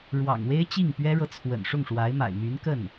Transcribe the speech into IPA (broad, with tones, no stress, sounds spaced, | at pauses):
ɻ w ɑ̰˨˩ ŋ w e˥ ɪ̯ t͡ɕ i˥˩ ŋ p ɥ ɛ˥ ɻ ɤ˨ t͡sʰ w ə̰˨˩ n ʂ ʊ˥˩ ŋ ʂ w a˧˥ ɪ̯ m a̰˨˩ ɪ̯ m y˧˥ n k ə˥˩ n